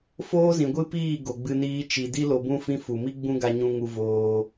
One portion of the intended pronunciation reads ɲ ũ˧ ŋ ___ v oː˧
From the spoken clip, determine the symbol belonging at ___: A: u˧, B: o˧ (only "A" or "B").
A